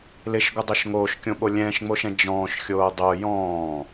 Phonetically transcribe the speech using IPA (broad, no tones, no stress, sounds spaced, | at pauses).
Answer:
l ɪ ʃ ɡʷ ɪ dˤ o ʃ ŋ oː ʃ kʲ õ ɓ o lʲ ɛ̃ː ʃ ŋ͡m o ʃ ɛ̃ d͡ʒ ɔ̃ː ʃ xʲ oː dˤ o j ɔ̃ː